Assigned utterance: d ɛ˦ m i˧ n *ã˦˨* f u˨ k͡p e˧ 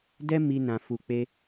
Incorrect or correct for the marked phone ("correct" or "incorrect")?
incorrect